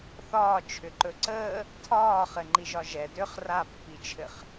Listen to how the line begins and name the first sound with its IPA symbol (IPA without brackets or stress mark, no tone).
θ